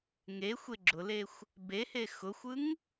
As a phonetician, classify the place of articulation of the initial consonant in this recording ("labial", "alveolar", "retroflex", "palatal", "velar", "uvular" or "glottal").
velar